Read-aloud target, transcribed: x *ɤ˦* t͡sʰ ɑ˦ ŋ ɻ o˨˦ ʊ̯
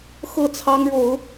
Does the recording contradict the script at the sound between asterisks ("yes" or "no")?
yes